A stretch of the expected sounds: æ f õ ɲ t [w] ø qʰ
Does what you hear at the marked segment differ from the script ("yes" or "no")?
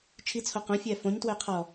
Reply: no